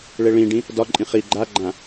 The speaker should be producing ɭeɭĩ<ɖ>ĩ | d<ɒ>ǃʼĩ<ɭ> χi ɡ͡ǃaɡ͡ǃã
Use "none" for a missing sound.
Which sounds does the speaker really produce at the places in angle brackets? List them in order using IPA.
ɖ, ɒ, none

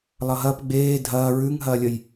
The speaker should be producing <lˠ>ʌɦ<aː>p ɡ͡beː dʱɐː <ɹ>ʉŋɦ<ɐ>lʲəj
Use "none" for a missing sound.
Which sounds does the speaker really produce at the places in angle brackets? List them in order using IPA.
lˠ, ɐː, ɹ, ɐː

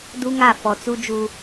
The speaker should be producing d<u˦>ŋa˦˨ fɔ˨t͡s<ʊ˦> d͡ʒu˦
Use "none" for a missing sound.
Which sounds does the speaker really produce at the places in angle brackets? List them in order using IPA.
u˦, u˦

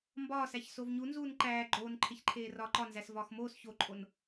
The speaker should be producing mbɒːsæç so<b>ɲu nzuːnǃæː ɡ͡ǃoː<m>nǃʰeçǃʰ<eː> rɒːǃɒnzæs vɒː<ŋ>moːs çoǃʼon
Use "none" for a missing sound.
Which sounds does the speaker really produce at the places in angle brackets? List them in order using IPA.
v, none, eː, x

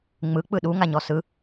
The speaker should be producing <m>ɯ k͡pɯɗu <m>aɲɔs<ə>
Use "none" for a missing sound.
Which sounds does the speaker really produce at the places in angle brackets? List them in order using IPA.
ŋ͡m, ŋ, ɯ

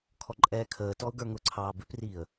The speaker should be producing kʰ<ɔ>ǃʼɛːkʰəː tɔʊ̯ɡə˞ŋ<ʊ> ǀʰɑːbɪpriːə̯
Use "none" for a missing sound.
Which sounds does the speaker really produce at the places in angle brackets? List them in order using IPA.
ɔ, ʊ

